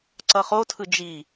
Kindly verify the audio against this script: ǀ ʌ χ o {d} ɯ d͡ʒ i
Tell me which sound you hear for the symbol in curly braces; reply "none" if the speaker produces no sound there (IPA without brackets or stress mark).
tʰ